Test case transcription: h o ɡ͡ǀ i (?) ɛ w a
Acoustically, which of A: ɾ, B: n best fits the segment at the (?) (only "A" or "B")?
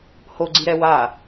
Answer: A